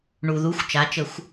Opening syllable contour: low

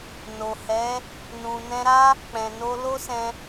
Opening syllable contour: low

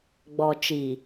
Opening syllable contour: low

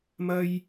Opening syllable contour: low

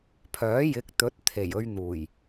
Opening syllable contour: rising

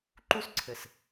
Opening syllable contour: high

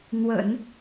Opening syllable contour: low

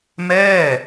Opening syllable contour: falling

